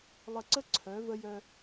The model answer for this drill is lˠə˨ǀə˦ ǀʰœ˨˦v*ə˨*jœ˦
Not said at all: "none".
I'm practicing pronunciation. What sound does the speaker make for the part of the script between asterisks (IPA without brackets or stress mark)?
ə˦